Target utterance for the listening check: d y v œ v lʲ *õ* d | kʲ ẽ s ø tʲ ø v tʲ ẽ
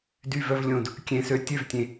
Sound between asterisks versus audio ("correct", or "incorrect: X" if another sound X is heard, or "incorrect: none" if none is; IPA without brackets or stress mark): correct